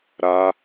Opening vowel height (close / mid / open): open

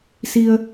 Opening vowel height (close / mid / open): close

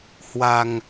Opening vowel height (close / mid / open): open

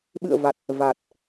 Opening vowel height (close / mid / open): close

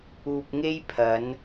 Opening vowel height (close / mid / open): close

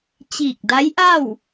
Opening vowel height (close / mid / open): close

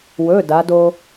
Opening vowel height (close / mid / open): mid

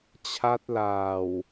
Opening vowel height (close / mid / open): open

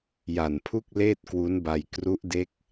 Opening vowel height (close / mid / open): open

